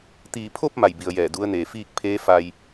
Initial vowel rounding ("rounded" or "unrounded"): unrounded